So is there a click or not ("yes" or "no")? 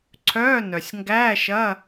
yes